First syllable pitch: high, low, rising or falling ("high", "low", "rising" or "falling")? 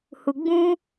low